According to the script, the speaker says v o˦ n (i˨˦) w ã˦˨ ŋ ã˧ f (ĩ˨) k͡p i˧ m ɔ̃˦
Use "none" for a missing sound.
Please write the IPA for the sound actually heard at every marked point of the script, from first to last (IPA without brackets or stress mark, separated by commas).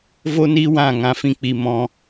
i˦, ĩ˧